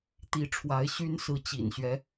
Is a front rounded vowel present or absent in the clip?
present